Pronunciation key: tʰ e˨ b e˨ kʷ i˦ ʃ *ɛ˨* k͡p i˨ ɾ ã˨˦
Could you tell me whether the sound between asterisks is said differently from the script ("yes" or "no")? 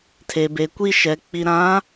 no